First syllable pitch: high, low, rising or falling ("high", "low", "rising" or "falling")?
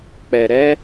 low